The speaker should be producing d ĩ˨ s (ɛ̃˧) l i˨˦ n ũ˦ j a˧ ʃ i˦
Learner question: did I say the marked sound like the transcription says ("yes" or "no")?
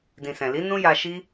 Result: no